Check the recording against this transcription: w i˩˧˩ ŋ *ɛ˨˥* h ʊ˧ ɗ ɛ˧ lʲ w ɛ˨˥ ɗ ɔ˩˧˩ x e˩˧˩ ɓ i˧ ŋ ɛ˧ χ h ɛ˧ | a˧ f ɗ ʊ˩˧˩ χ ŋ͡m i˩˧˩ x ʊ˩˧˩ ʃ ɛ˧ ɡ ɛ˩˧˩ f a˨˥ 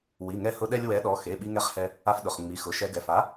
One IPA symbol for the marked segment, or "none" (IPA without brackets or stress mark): ɛ˧